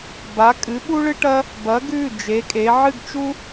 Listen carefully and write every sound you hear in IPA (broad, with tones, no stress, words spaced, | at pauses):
ba˩˧kʼɨ˩˧ ɓu˦ɭɨ˦ʈɐ˦ | bɐ˩˧ɡ ʉ˩˧˩ d͡ʒe˩˧kʼe˩˧ ʕɨ˦˨ɡt͡ʃu˦